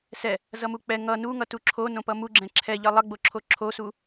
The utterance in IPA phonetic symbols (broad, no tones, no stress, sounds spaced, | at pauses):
s ɛ | z ʌ m u k͡p ɛ ŋ ʌ n u ŋ ʌ t u ǁʰ o n õ p ʌ m u ɡ͡ǁ ɛ̃ ǁʰ ɛ ʎ ʌ lˠ ʌ ɡ͡b o ǁʰ o ǁʰ o s u